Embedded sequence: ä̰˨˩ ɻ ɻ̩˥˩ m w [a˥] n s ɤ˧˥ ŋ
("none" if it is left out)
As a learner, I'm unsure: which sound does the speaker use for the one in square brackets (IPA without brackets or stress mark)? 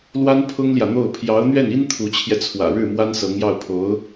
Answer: a˥